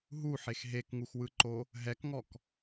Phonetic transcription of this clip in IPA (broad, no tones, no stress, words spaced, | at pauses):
ɦuħex ɦekŋuxwɯǃo | ɦɛkŋɔk